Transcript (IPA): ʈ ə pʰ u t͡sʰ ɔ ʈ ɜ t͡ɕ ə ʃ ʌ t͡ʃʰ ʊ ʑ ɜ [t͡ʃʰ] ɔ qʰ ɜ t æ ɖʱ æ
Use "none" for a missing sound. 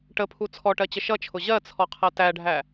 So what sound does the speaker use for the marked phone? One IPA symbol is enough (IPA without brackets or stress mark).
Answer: t͡sʰ